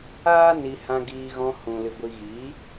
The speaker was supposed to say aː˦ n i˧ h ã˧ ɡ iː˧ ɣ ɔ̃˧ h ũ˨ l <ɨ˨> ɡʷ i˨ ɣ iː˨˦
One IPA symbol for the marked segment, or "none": ɨ˨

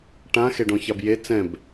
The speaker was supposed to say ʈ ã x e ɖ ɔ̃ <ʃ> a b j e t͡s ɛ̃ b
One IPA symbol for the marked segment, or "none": ç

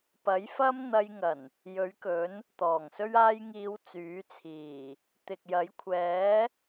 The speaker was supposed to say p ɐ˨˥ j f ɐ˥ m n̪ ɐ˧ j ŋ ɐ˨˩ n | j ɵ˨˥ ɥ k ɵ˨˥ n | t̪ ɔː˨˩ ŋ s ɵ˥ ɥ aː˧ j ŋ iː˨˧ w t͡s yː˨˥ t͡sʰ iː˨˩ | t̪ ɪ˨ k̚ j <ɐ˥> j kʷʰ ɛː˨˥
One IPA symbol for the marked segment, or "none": ɐ˨˥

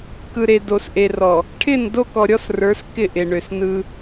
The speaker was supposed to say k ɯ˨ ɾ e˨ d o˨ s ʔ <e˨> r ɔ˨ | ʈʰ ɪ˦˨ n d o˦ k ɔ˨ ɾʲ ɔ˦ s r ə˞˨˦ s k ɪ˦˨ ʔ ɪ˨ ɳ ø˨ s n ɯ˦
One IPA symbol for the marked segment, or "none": e˨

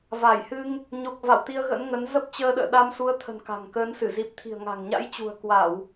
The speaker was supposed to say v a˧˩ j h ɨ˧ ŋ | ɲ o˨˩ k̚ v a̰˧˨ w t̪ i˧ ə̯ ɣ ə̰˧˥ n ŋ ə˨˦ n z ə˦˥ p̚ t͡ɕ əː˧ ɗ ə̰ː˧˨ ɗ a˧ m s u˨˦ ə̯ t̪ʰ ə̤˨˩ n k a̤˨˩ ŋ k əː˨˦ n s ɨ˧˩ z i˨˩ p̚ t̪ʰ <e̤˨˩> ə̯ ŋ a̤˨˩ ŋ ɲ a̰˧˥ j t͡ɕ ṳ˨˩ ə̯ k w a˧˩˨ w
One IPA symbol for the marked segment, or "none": i̤˨˩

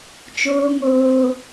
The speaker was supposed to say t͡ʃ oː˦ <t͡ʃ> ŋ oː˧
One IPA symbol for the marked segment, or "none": none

